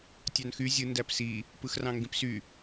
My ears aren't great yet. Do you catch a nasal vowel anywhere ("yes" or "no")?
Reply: yes